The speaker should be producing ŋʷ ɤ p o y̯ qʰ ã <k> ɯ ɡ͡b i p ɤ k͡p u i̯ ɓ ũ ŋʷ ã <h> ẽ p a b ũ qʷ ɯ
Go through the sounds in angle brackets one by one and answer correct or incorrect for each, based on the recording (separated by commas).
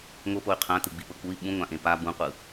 incorrect, incorrect